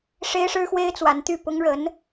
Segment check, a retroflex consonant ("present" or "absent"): present